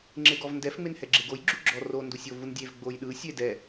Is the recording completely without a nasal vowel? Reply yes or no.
yes